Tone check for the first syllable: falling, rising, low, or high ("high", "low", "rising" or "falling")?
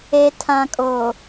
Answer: low